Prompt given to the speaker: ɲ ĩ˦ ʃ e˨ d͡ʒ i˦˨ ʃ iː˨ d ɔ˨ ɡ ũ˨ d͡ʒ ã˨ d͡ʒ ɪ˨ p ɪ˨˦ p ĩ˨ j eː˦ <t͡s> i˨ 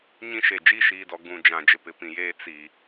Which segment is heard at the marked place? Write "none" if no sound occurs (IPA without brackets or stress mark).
t͡s